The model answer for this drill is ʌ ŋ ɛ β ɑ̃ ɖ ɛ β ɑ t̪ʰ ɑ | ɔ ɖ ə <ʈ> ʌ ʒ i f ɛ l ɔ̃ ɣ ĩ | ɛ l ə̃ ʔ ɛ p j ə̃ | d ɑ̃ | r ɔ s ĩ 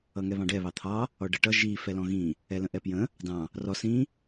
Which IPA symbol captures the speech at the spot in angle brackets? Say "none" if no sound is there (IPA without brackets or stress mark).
ʈ